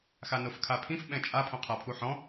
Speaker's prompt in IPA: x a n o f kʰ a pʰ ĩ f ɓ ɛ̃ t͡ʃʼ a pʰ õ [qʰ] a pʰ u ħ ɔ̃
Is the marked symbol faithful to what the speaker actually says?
yes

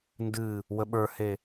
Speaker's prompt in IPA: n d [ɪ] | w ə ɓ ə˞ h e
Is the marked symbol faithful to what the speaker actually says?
no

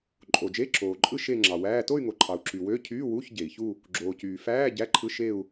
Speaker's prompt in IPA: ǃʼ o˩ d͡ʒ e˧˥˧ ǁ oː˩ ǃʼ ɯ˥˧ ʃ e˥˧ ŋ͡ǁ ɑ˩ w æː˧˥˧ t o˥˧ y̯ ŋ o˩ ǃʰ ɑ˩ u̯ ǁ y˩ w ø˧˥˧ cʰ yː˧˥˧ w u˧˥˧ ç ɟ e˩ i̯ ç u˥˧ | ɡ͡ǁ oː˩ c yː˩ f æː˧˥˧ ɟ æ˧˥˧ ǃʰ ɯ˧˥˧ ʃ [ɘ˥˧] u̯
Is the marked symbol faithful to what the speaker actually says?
no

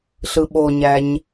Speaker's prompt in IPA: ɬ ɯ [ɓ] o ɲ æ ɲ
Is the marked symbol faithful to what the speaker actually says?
yes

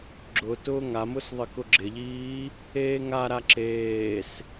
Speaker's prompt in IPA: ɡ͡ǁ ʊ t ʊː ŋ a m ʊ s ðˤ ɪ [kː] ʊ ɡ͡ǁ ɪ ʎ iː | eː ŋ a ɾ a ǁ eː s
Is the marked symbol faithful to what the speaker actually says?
no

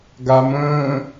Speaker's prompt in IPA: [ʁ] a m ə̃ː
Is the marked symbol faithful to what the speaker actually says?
no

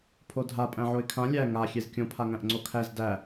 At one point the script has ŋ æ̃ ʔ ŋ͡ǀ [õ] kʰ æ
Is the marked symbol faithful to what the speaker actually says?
no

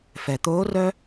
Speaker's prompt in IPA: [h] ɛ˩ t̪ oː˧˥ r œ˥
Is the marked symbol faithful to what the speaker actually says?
no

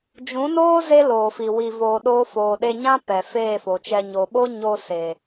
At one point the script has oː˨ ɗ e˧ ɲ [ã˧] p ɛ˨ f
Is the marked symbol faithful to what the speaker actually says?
no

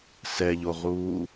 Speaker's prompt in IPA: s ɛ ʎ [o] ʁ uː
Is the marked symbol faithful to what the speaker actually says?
yes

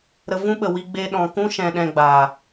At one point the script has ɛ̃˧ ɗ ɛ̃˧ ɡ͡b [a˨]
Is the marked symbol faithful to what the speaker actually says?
no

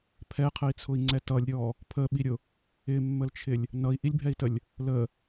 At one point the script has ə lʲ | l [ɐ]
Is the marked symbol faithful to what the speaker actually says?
no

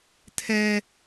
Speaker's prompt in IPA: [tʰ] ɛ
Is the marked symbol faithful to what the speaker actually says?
yes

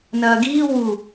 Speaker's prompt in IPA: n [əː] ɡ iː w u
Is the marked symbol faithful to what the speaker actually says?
no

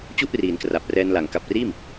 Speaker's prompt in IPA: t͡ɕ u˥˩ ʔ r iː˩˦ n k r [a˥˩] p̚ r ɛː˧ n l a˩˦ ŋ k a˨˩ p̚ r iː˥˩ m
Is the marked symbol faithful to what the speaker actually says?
no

